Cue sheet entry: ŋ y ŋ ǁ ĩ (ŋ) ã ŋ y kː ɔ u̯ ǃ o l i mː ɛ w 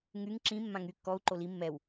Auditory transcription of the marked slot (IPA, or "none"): mː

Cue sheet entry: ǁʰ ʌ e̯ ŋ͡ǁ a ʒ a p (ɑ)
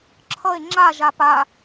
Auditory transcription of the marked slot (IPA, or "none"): a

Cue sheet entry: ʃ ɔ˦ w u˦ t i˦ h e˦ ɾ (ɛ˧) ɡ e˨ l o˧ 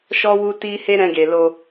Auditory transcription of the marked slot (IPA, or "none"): ɛ̃˧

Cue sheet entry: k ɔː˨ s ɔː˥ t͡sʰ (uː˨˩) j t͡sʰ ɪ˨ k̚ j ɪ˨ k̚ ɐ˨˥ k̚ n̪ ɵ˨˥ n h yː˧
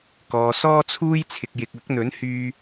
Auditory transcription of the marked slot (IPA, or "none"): uː˥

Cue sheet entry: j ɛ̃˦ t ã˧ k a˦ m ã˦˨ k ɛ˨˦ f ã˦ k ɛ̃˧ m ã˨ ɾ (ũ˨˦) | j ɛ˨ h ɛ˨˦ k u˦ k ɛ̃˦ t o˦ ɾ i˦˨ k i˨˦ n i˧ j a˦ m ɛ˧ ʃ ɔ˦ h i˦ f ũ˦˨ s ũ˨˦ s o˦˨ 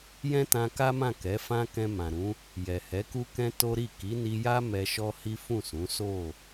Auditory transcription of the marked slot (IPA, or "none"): ũ˨˦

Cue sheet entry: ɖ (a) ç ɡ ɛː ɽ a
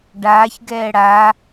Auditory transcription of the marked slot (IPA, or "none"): aː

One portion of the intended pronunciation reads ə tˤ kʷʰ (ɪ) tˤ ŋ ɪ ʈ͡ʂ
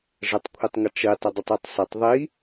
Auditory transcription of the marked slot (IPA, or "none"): i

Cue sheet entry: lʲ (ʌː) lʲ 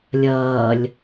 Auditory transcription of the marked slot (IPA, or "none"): ʌː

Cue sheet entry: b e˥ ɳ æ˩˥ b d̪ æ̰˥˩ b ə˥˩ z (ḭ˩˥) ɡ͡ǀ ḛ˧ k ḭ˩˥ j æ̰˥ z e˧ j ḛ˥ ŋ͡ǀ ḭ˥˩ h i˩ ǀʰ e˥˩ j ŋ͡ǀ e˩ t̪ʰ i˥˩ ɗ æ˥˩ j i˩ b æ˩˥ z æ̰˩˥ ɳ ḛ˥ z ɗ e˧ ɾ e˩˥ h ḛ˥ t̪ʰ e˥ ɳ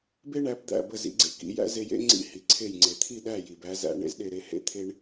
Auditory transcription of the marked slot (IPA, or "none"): ḭ˩˥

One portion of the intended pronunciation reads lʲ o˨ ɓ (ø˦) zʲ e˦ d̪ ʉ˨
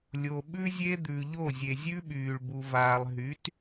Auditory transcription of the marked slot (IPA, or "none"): ʉ˦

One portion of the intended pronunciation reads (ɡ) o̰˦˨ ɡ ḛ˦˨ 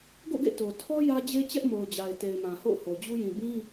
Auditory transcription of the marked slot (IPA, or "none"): ɡ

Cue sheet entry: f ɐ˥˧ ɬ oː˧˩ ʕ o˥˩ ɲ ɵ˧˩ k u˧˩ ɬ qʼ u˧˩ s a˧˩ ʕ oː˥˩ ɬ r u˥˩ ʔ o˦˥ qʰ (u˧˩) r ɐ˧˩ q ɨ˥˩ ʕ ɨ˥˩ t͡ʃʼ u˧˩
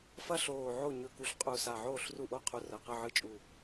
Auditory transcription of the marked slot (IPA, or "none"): u˧˩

